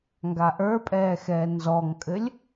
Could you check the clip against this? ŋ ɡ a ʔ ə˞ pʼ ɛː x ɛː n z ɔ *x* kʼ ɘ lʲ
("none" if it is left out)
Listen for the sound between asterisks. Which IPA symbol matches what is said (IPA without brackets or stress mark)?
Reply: ŋ